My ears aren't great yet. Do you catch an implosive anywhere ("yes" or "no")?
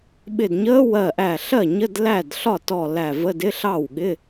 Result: yes